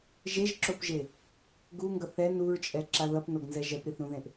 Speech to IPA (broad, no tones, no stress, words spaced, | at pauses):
ʒeʒǁopʒe | ɡuŋɡʌ θɛn uɹt͡ʃʼɛǁa ðʌpnoɡnzɛ ʒɛpɾiθɾũðẽʔ